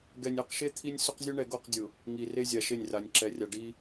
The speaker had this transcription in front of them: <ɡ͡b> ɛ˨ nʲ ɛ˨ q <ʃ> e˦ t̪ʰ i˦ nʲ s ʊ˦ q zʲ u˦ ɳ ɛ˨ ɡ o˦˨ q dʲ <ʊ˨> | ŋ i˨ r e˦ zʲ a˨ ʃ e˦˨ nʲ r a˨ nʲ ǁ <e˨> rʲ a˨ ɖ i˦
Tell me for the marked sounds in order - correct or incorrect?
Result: incorrect: ɡ, correct, correct, incorrect: ɛ˨

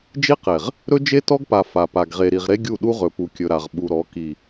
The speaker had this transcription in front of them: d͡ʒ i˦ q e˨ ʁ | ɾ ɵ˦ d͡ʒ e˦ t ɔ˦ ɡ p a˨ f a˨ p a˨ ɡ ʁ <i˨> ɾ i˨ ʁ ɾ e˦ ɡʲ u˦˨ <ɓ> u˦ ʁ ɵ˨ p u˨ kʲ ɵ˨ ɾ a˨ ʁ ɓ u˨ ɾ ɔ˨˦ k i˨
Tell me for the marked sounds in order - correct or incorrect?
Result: incorrect: e˨, incorrect: ɗ

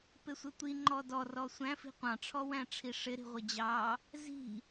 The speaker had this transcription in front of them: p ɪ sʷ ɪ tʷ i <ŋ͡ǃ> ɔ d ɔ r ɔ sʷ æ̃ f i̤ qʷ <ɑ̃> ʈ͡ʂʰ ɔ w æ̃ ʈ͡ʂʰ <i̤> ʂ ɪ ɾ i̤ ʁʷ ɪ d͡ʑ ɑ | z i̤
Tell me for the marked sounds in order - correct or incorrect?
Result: correct, correct, incorrect: i

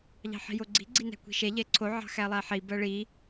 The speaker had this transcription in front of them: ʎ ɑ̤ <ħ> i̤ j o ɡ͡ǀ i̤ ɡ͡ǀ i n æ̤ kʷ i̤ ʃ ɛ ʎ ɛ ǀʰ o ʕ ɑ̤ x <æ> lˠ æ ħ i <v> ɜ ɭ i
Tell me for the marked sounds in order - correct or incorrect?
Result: correct, correct, incorrect: b

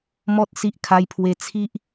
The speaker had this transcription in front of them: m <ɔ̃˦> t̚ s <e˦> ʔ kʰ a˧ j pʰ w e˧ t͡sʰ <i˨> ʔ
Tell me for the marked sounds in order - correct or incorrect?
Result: incorrect: ɔ˦, incorrect: i˦, incorrect: i˦

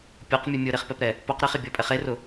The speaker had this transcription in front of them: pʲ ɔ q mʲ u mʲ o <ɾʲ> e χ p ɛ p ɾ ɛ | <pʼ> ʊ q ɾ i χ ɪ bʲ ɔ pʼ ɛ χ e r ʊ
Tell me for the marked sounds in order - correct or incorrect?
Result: incorrect: ɾ, incorrect: p

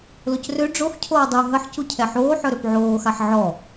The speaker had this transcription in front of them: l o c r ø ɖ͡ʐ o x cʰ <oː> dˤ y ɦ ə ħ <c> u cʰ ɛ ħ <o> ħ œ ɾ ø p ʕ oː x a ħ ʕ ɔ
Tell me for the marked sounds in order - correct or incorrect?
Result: correct, correct, incorrect: oː

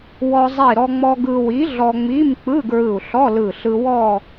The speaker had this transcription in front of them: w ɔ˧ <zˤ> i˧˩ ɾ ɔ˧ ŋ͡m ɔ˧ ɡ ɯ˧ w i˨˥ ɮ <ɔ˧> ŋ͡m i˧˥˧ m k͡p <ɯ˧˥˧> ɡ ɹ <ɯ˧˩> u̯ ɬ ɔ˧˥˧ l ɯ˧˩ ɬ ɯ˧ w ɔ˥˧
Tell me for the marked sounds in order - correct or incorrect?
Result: correct, correct, correct, correct

